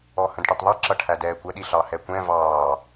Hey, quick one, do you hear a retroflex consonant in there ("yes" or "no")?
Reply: yes